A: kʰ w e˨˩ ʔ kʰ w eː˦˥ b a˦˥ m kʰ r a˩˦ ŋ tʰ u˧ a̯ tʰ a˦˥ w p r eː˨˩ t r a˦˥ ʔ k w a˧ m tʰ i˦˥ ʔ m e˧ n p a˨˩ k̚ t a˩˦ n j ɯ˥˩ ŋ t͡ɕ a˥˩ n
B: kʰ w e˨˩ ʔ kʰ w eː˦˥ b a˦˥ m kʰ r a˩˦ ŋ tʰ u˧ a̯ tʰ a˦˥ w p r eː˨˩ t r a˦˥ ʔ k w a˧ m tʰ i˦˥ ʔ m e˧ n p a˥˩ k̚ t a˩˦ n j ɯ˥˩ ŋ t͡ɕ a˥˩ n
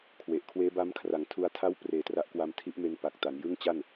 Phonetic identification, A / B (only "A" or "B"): A